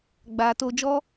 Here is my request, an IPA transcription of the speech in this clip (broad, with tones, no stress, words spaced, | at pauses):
ɡ͡ba˨ to˧d͡ʒɔ˦